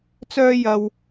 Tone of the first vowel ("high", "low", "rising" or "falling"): high